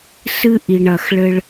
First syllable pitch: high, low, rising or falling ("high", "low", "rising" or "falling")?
high